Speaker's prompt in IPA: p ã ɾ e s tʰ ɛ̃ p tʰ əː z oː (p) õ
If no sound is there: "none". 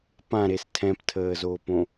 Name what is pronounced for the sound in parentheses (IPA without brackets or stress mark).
p